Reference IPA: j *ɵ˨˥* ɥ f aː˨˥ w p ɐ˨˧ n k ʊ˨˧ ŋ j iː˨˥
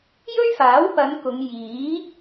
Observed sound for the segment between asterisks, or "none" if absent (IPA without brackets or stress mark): ɵ˥